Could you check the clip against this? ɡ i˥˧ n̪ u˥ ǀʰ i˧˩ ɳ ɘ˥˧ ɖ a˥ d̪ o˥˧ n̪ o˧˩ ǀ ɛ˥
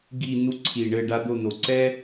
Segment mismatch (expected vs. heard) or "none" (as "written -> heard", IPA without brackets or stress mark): none